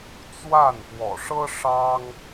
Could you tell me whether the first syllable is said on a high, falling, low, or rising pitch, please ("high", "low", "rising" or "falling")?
falling